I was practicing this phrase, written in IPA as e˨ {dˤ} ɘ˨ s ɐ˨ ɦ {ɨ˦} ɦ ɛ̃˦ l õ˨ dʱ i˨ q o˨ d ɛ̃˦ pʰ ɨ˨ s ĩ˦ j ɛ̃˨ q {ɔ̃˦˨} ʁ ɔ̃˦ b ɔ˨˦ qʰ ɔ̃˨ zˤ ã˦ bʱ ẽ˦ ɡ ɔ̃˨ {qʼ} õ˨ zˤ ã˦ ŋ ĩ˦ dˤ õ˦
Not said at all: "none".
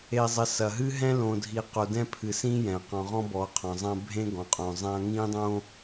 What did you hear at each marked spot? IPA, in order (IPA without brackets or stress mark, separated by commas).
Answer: zˤ, ɨ˦, ɔ̃˨, qʼ